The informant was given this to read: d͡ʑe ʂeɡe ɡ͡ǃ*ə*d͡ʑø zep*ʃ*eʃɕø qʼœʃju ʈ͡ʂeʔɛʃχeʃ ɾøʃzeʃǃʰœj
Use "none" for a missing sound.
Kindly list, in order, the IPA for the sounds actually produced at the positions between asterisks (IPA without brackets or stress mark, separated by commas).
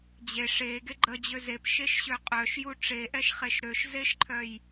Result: ə, ʃ